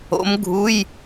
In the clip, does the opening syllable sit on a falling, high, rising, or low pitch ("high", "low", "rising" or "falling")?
rising